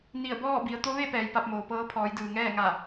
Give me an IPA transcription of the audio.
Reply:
n i˧˩ ə̯ b ɔː˥˨ b i˩˧ ə̯ t̪ o˧˥ ʋ e˥˨ p ɛː˩ j p a˧ p̚ m oː˩ p ɤː˧˥ pʰ ɔː˩˧ j d ɯː˩ ŋ ɛː˥˨ ŋ a˧˩

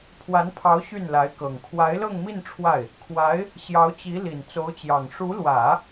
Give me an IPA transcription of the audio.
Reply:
pʰ w a˧˥ n pʰ ɑ˧˥ ʊ̯ ɕ y˥˩ n l a˧˥ ɪ̯ k ɤ˨˩ ŋ kʰ w a˧˥ ɪ̯ l ɤ˥˧ ŋ m i˥˧ n ʈ͡ʂʰ w a˥˩ ɪ̯ | kʰ w a˧˥ ɪ̯ | ɕ j ɑ˧˥ ʊ̯ t͡ɕ i˧˥ l i˨˩ n t͡s o˧˥ ʊ̯ t͡ɕ j ɑ˨˩ ŋ ʂ u˧˥ l w ä˨˩˦

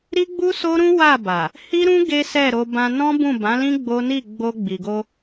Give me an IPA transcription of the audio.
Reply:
ɾ i˦ ɡ͡b u˦ s o˦ ɾ ũ˦ w a˦˨ b a˨ | h i˦ ɾ ũ˦ ɡ e˦ s ɛ˦˨ ɾ o˧ b ã˧ n ɔ̃˦ b ũ˦˨ b ã˨˦ l ĩ˦ ɡ͡b o˦ n i˦˨ ɡ͡b o˧ ɡ͡b i˨ ɡ o˧

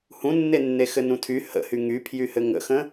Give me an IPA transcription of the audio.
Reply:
h ũ nː e nː e x ɘ n ũ tʰ y h ə̰ h y ŋ y pʰ j y h ɘ ŋ ə̰ x ə̃

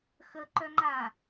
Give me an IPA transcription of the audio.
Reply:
x ə ǃ œ ŋ͡ǃ a

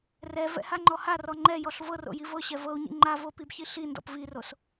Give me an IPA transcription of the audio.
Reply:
r ɛ v ɛ̰ h a ŋ͡ǃ ɔ h a r ɔ ŋ͡ǃ ɛ j ɔ ɬ v ɤ r o̰ j i v ɤ ɕ ɛ v ɤ u̯ ɲ ḭ ŋ͡ǃ a v o p i b ç i ɬ i n d ɔ̰ p v i r o s

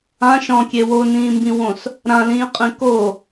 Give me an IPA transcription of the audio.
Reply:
ã ʃ ɔ̃ kʲ e w o n ĩː m b ĩ w õ s | ɾ ã l ĩː qʼ ĩ k o

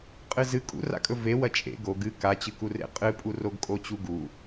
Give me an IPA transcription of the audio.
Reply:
qʼ ɨ z ɨ kʼ ṵ r a̰ kʼ ɵ v e w ɐ t͡ʃʼ ḛ ɡ o ɡ ɨ k a t͡ɕ ɨ k u r ḛ qʼ ɨ pʼ u r o ɡ kʼ o t͡ɕ u ɡ u

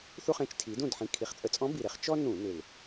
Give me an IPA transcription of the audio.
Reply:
θ u˥ χ ẽ˧˥ t͡ʃ tʰ i˩˥ d ũ˥˩ d ħ ĩ˨˩ kʰ i˨˩ χ t͡sʼ ə˧˩˧ t͡sʼ ɔ̃˧˥ b i˨˩ ɾ e˩˥ χ t͡ʃ ɔ˥ n ũ˧˩˧ n ʏ˨˩ l

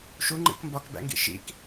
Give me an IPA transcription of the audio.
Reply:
ʃ u ŋ͡ǃ ḭ k m b ɒ k b æ̰ ŋ ɡ ḭ ʃ ḭ k

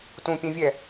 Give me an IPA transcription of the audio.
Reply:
t ũ pʲ ɛ̃ vʲ ɛ

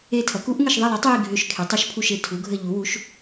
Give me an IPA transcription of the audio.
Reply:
e˦˨ tʰ ɐ˩˥ k u˩˥ ʔ ŋ ə˦˨ ʃ ðˤ i˦˨ lˠ e˩˥ tˤ j i˦˨ ɡʱ ø˦˨ ʃ kʰ e˩˥ tˤ ɐ˩˥ ʃ pʰ u˦˨ ʃ e˦˨ tʰ u˩˥ ɡʱ ə˦˨ ʎ u˩˥ w u˩˥ ʃ

